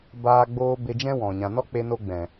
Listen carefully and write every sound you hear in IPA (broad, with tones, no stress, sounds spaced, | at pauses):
b aː˧ ɡ͡b oː˧ b e˧ d͡ʒ ɛ̃˦ w ɔ̃˨ ɲ ã˨ n ɔ˦ k͡p e˧ n o˧ ɡ͡b ɛ̃˨